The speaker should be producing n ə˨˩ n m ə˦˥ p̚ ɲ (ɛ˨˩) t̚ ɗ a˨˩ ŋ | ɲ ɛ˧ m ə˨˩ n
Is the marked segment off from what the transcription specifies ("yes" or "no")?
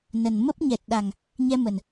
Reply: no